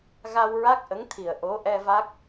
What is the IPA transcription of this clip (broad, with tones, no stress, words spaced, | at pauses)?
ɣa˧wɹa˦˥k̚ʔə˧˥ŋ t̪ʰi˨˩ə̯ʔo˧˥ʔɛ˧ va˦˥k̚